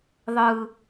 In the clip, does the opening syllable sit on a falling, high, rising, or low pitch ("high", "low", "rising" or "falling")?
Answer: low